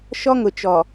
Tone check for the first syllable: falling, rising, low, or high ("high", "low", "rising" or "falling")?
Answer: high